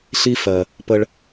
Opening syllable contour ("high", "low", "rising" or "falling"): high